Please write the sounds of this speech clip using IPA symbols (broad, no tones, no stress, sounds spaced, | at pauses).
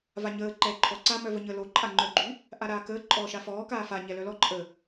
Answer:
v a ɲ əː ǃ ɛː ǃʰ ɔ ǀ a m œ v ə ɲ əː l o ǃʼ a ŋ͡ǃ œ ɡ͡ǃ y | ʔ a ɾ aː k əː ǃʼ ɔː ʃ a f ɔː k aː f a ɲ ɛ l œ l ɔ ǃʼ ə